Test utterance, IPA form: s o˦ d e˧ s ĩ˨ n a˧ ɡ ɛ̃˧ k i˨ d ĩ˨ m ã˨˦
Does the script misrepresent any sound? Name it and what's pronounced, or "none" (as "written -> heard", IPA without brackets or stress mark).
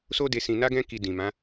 none